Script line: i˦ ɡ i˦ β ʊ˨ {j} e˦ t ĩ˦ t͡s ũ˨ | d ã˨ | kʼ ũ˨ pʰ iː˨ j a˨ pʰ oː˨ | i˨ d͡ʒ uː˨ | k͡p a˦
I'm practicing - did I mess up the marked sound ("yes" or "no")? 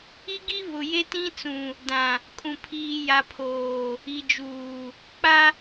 no